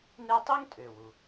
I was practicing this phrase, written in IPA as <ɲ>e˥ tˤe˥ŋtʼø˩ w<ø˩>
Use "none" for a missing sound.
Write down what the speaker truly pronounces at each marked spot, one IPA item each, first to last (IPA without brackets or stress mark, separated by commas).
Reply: n, u˩